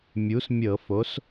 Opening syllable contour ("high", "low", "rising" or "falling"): rising